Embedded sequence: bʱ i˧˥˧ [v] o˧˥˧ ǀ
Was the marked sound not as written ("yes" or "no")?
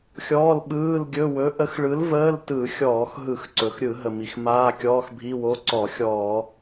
yes